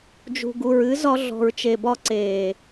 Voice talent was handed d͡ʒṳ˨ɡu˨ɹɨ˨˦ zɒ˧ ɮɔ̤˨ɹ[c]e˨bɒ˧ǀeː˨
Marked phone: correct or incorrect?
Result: incorrect